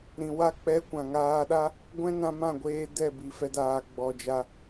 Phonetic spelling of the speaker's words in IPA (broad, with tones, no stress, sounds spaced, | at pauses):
ɾ ĩ˨ w a˦˨ k͡p ɛ˦ kʷ ã˨ ŋ aː˧ ɗ a˦ | ɡʷ ɛ̃˦ n ã˧ m ã˦˨ ɡʷ eː˧ d ɛ˦˨ b i˨ f ɛ˧ d aː˨ ɡ͡b ɔ˨ d͡ʒ a˧